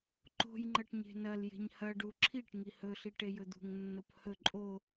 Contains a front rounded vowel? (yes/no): no